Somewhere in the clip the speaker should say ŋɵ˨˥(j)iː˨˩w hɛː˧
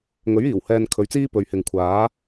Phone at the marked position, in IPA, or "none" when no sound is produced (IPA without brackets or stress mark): ɥ